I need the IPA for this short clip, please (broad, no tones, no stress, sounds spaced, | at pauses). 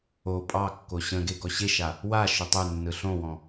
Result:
o pʼ ɑ kː o ɕ ə̃ ɡ e ɡ ɔ ɕ e ʃ a | w a ʃ ɵ tˤ ʉ nː ɯ ɬ õ w ɔ̃